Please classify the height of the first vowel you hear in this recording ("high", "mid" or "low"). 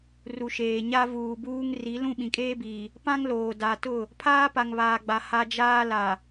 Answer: high